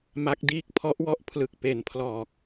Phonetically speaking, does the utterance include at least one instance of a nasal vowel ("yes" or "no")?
no